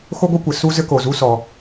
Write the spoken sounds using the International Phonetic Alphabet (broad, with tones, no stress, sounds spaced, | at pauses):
x o˦ ɡʷ ɨ˦ kʷ ɘ˩ s u˦ z ɘ˦ k o˩ z u˦ s ɔ˩